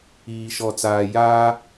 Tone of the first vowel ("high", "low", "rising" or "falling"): low